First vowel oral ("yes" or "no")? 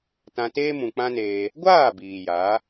no